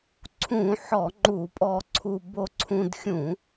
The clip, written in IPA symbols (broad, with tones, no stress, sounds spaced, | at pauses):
ǀʰ ũ˧˩˧ ħ ɔ˧˩˧ ŋ͡ǃ u˧˩˧ pʼ ɔ˧ ǀʰ u˧ b o˧ ǀʰ ũ˧ d xʲ ũ˧˩˧